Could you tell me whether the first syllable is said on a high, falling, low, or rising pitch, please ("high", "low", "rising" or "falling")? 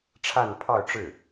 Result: falling